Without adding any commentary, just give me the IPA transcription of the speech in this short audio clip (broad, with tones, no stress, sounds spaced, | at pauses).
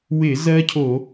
w ɪ˧˩˧ z ɜ˦˥ cʰ o˧˩˧